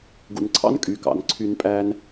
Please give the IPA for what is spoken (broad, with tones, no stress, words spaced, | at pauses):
ɡṵ˨nǀʰɑ̰˦nkʼy˨ kɑ̰˨nǀʰy˧n pʼæ˧n